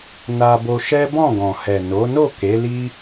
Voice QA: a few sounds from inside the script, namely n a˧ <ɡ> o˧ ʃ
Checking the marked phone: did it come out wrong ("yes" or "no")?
yes